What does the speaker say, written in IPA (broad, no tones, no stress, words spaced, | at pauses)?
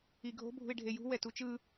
iɡʱo̤ bʱṳɪ̯ɖʱejṳ wɛtut͡ʃɯ